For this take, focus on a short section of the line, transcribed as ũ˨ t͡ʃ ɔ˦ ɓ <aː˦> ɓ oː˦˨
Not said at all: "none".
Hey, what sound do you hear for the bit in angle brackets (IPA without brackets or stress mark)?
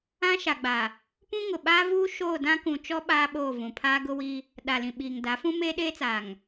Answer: aː˦